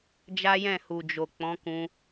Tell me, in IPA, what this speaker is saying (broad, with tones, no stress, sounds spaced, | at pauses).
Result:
d͡ʒ a˦ j ɛ̃˦˨ h u˨ d͡ʒ o˨ k͡p ɔ̃˨˦ k ũ˧